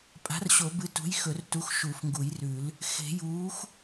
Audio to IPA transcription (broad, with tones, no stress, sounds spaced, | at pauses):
pʼ a̤˨˥ r ɕ o˨˩˦ b ɨ˨˥ t ṳ˨˥ j x ɵ˨˩˦ r t u˨˥ x ʃ u˨˩˦ f ŋ ɡ u˨˩˦ j r ʉ˨˩˦ l | x e̤˨˩˦ j uː˨˥ x